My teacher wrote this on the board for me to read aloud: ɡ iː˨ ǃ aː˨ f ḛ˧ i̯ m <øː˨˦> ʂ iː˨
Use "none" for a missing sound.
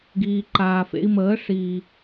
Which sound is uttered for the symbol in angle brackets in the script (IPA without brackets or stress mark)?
əː˨˦